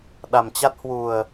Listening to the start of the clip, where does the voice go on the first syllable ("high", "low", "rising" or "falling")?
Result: low